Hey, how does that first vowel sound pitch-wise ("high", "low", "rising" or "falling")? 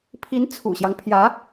rising